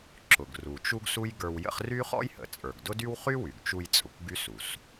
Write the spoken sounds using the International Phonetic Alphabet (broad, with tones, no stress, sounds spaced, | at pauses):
ǁ ʊ˩ ɡ r u˩ t͡ʃ u˥ ɡ s u˥ j ɡ ə˞˧ w j ə̰˥ χ r y˥ χ ɔ̰˥ j h ə̰˩ t͡sʼ ə˞˩ ɡ d ʊ˥ d y˥ w χ y˥ w y˩ ɡ t͡ʃ u˧ j t͡sʼ ʊ˩ kʷ ɡ y˥ s u˩ s